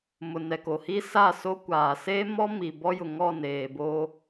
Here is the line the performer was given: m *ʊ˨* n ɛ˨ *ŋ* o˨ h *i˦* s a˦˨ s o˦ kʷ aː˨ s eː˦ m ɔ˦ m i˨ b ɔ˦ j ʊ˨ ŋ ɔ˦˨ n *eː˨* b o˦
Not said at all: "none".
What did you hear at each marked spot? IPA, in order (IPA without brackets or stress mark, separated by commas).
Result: ʊ˨, k, i˦, eː˨